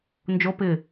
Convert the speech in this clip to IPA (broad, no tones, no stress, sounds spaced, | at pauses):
n d͡ʒ o p ɪ